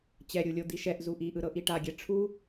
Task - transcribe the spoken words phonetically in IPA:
t͡ɕɛɾʲulʲo d̪iʃɛʔ zuʔiʔɯɾɤ ʔiʈaɡʲɛ ʈ͡ʂʰu

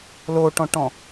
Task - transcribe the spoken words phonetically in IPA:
loʈɔ̃ʈɔ̃

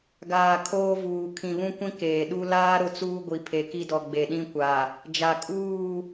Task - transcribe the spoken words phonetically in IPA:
ɡaː˨ kʰoː˦vuː˨ kʰĩ˨βũ˦kʷĩ˦ keː˨ɗu˦ laː˦ ɾʊ˦t͡suː˦ ɡʷi˨pʰe˨ki˦dɔ˨ ɡ͡be˨ɗĩ˦kʷa˨ | d͡ʒa˨kʼuː˦˨

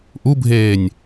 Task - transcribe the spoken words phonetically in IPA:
ʔubʱeːnʲ

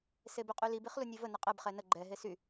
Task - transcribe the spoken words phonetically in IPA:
sebyqʼylib iχlunʲevə nəqʼɛb χɛnə ɡ͡ǃɛ ɦesy

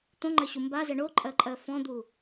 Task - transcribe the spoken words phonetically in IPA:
t̪õŋ͡ǃɜɕu mbazɛ ɳoǃʼɜǃʼɜ fɔ̃d̪u

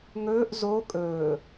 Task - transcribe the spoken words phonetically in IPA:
ŋɵːʔ zo kʼɵː

